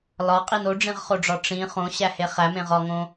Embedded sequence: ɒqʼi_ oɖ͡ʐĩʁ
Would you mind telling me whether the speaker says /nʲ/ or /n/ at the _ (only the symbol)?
n